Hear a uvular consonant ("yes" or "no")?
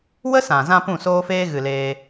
no